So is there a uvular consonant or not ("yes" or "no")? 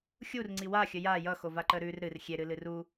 no